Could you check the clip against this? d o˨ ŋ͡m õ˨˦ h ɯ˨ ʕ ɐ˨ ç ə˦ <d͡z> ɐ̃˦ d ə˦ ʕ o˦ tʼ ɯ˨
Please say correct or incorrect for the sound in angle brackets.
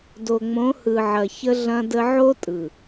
incorrect